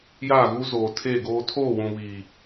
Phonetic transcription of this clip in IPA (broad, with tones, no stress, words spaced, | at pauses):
jaː˦˨ɣu˦ zoː˨tʰe˦˨ɡoː˦ tʰoː˦˨wũ˨βiː˨